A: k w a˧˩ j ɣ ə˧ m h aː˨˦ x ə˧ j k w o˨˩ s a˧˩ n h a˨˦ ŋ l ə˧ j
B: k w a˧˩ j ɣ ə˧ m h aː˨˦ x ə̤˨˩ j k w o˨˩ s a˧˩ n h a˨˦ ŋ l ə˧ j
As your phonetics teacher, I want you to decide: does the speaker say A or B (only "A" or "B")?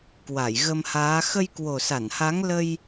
A